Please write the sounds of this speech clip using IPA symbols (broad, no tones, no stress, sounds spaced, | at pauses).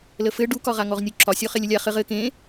l ə f ɘ ɖ u k ɒ ʁ a ŋ ɔ ʁ nʲ u ǁʰ ɒ sʲ ɔ χ e lʲ ə lʲ a χ ɘ ʁ ɘ k ẽ